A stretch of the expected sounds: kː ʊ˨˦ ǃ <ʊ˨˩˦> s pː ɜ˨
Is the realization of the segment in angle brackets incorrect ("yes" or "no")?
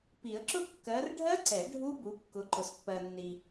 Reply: yes